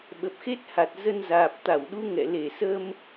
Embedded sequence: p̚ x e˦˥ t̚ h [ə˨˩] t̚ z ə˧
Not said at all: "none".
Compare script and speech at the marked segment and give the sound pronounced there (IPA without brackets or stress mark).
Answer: a˨˩